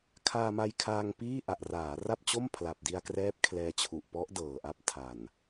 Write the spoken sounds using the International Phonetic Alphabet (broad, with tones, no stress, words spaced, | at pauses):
kʰaː˧ma˧jkʰaː˧ŋ piː˥˩ ʔa˨˩ʔraː˩˦ ra˥˩p̚t͡ɕo˥˩m pʰla˨˩p̚di˧a̯krɛː˦˥p̚ kʰlɛː˧t͡ɕʰu˨˩ʔ pɔ˦˥ʔdɤː˨˩ʔa˦˥p̚ tʰa˨˩n